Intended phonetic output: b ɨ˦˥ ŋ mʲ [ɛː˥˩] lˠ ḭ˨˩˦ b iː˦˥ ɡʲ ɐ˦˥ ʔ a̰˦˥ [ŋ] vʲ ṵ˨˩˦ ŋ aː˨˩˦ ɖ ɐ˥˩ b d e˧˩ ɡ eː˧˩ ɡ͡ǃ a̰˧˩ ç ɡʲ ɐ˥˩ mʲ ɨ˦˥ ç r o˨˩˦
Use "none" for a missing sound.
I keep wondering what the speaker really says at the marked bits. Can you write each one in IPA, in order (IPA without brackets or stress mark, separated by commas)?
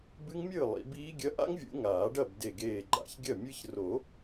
ɨː˥˩, ŋ